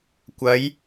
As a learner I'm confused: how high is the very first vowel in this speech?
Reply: low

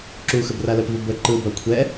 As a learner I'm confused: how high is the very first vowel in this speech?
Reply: high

